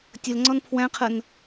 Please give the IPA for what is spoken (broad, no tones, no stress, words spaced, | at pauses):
tʲəlŋ͡ǀɔn pʰwæ̃qʰən